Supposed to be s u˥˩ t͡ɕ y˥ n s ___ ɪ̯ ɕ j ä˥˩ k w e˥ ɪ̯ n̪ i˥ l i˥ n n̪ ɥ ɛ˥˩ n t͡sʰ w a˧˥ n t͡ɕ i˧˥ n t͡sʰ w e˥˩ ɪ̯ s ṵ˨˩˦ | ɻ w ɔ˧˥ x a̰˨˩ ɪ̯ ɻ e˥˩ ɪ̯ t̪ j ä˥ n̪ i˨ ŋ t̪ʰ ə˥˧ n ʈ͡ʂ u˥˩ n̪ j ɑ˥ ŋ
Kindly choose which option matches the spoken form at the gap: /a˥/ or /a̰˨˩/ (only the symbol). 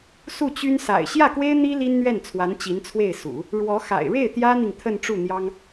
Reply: a̰˨˩